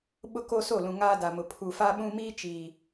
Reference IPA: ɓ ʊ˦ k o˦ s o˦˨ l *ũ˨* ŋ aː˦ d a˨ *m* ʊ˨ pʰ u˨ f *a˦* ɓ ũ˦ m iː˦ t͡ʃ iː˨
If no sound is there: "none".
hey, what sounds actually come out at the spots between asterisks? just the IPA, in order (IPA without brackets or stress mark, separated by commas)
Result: ũ˨, m, a˦